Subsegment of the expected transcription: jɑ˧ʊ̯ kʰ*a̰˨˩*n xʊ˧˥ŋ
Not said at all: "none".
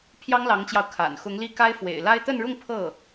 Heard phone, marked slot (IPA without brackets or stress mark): a̰˨˩